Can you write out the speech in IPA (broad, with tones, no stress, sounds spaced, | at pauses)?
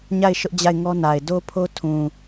ɲ a˦˨ ɪ̯ ʃ ʊ˦ ʔ d͡ʑ a˦˨ ɪ̯ ŋ ɔ˦ n a˨ ɪ̯ d o˦ pʰ o˦ tʰ ũ˨